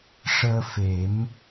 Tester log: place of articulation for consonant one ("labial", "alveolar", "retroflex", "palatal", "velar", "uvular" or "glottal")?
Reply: retroflex